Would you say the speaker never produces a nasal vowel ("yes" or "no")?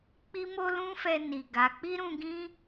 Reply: no